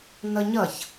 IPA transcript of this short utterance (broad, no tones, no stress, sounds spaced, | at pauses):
n ʌ ɲ ʌ ç